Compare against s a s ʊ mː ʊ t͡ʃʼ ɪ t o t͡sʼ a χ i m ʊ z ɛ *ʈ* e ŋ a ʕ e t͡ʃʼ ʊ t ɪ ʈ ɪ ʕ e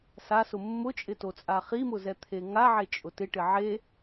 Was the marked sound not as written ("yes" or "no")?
yes